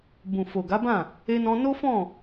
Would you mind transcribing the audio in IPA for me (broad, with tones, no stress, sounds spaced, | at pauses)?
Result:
b ũ˨ f o˨ ɡ a˨˦ b ã˦˨ | e˧ n ɔ̃˧ n o˦ f ɔ̃˦˨